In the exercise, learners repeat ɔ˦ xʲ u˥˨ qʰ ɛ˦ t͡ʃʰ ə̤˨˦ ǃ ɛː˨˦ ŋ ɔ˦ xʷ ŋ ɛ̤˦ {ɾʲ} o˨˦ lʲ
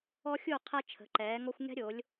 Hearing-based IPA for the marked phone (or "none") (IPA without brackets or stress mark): ɾʲ